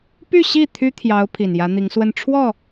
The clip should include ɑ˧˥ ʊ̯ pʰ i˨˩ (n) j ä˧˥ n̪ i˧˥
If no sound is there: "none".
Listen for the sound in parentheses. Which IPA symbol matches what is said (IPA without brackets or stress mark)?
n